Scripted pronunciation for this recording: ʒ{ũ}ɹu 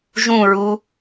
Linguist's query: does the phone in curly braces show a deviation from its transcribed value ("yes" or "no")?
no